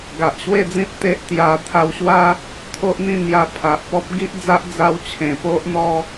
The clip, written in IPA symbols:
ɡ a˨ ʔ ɕ w e˥˧ d͡z ĩ˦ t̚ t̪ e˦ ʔ t̪ j a˧ t̪ʰ a˧ w ɕ w a˦ | t̪ʰ o˦ ʔ n̪ ĩ˥˧ n̪ j a˧ pʰ a˨ ʔ p ɔ˦ p̚ ɡ i˦ ʔ d͡z a˦ ʔ d͡z a˦ w t͡ɕʰ ẽ˧ p o˦ ʔ n̪ ɔ˦

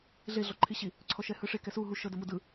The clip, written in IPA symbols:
ɮ e ɮ ɔ ǃʰ i ɕ i | ǀʰ ɔ ʃ ɛ h ɯ ʂ e k ɛ s u ɦ u ʃ ɤ d ɤ m u d ɯ

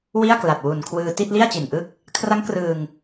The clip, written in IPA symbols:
w i˥˩ a̯ k l a˨˩ t̚ w u˨˩ n kʰ w ɯː˧ t i˥˩ t̚ l i˥˩ a̯ t͡ɕ i˨˩ n ʔ ɯ˥˩ k̚ | kʰ r a˦˥ ŋ k r ɯː˧ ŋ

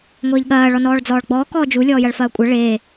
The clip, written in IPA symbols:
ŋʷ eː ʎ ɠ ɐː ɭ ɔ n ɔː ɭ d͡z ɔː ɭ ɡ͡b ɔː k ɔː d͡ʒ u lʲ ɔː j ɐ ɭ f ɐː kʷʼ ɐ ɭ eː

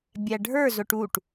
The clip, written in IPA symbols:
bʲ æ ɖʱ ə˞ z ʊ ʈ u ʈ

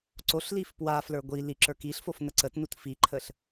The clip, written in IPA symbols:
ǀ o ɬ l i f p w a f l ə˞ ɡʷ i l i ǁ ə˞ k i ɬ f o f n ə ǀ ə t n u t f i ǃʰ ə ɬ

